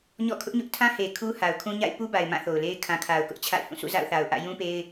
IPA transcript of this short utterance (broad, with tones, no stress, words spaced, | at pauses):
ɲɔ̰˦˨kʰʊ˦ʔɲʊ˦ʔ tʰã˦he˨ kʰu˦ha˨ʊ̯kʰũ˦ɲa̰˦˨ɪ̯ pu˦ba˨ɪ̯ mã˦˨θo˨ʊ̯le˦ɪ̯ kʰã˨kʰa˨ʊ̯kʊ˦ʔ t͡ɕʰa̰˦˨ɪ̯hũ˦˨ sṵ˦˨za̰˦˨ʊ̯θa˨ʊ̯ ʔä̰˦˨ jũ˦pe˦ɪ̯